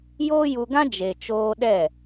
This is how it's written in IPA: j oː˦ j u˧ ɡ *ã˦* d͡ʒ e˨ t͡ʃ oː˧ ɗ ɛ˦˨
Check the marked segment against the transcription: correct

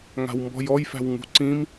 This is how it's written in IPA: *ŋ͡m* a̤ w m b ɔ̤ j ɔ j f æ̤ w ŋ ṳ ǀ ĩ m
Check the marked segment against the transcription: incorrect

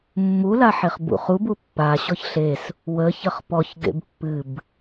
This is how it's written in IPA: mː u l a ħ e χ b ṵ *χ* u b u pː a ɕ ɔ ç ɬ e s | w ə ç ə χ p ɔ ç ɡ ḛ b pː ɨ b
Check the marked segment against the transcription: correct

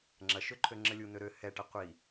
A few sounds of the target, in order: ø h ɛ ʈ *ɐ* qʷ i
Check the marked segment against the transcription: correct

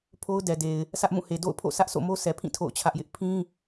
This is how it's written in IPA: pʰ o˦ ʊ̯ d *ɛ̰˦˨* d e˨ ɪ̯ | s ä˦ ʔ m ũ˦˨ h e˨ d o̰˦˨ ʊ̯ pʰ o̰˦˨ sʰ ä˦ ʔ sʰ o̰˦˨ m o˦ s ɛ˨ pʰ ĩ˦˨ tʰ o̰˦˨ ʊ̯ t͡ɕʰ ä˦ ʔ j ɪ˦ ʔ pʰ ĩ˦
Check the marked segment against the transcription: incorrect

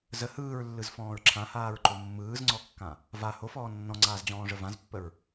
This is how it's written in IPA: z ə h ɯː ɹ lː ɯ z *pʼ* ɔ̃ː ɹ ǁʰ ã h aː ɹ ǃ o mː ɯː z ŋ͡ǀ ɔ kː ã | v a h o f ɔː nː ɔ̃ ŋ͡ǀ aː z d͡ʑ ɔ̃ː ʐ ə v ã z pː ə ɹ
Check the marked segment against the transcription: incorrect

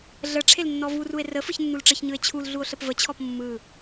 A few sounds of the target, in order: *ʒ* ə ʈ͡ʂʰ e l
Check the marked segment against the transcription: incorrect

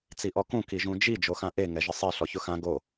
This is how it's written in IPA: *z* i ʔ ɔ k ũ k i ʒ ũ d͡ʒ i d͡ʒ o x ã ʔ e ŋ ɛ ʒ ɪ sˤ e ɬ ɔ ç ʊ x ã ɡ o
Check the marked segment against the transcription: incorrect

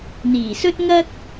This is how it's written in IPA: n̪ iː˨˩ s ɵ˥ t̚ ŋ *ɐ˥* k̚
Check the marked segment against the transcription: correct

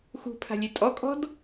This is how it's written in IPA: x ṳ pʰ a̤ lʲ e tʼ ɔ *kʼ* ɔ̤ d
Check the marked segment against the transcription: correct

